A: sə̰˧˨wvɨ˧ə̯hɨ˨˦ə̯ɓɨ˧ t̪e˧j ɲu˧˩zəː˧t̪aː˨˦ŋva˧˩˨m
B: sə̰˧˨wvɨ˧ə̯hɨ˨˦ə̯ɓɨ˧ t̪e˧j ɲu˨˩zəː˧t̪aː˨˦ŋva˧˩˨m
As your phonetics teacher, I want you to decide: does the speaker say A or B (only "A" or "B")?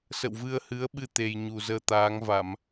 B